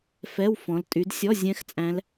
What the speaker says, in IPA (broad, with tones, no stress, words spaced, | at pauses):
fɛ˧˥˧wfɔ̃˨˦l tʼy˨˦dsʲɔ˧˥˧ zʲɛ̃˦˥x t͡sʼæ̃˦˥l